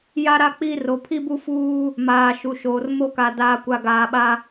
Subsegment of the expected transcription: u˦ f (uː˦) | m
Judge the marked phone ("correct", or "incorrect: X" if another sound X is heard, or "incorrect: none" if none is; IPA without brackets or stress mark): correct